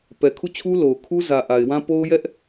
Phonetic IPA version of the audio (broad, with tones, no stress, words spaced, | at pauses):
pɛ˨kʰu˦˨t͡ɕʰu˦ lo˨ʊ̯kʰu˦ zä˨ʔa˨ɪ̯wã˦ po˦ʊ̯ jɛ˦ʔ